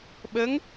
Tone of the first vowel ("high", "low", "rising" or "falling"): rising